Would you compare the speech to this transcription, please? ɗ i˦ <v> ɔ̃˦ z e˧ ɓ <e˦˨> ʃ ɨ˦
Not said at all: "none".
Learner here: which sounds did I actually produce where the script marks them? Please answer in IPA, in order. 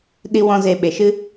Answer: w, e˨

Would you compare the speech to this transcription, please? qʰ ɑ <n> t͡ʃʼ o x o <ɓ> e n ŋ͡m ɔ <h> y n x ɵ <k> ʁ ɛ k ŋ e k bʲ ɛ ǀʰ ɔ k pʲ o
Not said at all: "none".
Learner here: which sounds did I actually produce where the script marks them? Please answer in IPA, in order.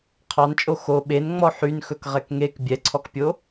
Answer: n, ɓ, ħ, k

